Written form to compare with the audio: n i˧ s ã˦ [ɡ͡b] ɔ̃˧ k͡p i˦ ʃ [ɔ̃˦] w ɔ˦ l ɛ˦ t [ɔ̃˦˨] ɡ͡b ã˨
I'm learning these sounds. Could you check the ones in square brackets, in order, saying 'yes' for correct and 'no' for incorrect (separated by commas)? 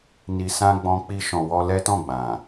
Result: yes, no, yes